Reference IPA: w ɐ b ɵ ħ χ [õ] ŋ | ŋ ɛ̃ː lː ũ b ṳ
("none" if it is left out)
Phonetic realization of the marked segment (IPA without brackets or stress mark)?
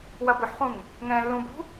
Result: ũ